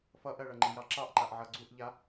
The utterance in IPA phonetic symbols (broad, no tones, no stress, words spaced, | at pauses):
fʌʔɜɭʌ ŋ͡ǃijɑǁɑʔǃaʔ ʕʌɡ͡ǀuʔʎa